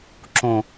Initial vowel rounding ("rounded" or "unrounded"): rounded